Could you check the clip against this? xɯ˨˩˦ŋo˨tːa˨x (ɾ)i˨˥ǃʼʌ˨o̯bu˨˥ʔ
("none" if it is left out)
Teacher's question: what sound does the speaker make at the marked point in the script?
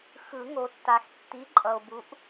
tː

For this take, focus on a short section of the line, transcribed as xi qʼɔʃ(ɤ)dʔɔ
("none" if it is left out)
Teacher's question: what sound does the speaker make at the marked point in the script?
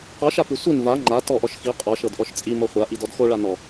ɤ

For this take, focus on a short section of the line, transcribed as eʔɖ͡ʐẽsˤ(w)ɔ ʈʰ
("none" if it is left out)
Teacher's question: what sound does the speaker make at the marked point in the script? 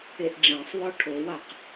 w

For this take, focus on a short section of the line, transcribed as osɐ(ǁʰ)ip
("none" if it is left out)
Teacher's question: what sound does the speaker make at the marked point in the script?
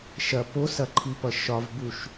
ǃʰ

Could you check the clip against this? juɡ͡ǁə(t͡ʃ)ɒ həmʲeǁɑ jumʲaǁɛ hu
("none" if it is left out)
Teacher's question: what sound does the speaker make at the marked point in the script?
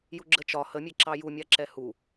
t͡ʃ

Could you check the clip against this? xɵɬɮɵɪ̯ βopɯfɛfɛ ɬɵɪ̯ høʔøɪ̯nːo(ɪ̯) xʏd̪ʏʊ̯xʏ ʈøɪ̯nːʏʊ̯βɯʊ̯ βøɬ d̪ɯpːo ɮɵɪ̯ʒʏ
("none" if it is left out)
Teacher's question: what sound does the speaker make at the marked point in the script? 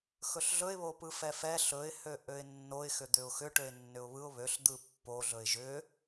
ɪ̯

